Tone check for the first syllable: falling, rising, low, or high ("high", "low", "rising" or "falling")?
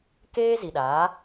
high